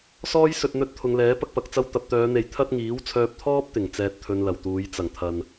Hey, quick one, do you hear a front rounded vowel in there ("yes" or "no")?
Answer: yes